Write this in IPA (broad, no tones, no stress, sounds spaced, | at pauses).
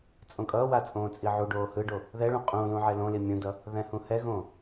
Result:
t͡sʼ õ kʼ ʌː w a t͡sʼ õː t͡sʼ i ʕ u ɖ oː h ɯ ɖ o | ð ɛ ɭ ũ qʼ ũ l ũ ʕ ɛ l õ l i mʲ ũ d ʌ | ð ɛ̃ h ũ h ɛ ɣ õː